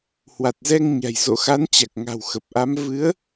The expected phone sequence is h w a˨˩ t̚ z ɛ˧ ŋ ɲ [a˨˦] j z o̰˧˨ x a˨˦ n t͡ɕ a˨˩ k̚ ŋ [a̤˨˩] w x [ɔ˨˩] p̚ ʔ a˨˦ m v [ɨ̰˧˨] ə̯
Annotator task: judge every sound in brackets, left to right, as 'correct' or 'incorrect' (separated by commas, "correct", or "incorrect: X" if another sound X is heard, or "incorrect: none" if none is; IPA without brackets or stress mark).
incorrect: a̤˨˩, correct, incorrect: ə˨˩, incorrect: ɨ˨˦